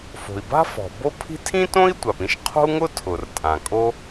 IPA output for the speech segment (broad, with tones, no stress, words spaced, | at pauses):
fo̤˩i̯ba̤˥fɔ̤˩ bo˥pʰi̤˥ tʰĩ˥tõ˥i̯ tʷa˩pĩ˥ʃqʰo̤˥u̯ŋʊ˥ tʰʊ˩rtʼã˩kʼo˥